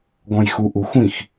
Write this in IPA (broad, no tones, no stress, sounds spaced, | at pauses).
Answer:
ɡ ɔ̃ j x u ʔ u xʷ ĩ x